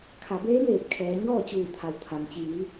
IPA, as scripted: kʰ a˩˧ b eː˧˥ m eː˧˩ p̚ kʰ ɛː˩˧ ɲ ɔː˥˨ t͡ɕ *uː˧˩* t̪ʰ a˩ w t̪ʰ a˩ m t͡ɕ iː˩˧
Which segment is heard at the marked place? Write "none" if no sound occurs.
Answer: uː˧˩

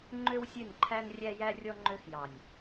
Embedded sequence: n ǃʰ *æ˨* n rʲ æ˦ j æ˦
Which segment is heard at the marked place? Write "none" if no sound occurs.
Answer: æ˦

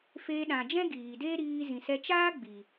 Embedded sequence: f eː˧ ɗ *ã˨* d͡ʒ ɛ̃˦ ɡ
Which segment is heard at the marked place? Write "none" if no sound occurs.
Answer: ã˨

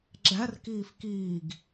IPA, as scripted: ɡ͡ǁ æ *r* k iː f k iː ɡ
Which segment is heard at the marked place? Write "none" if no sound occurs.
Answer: r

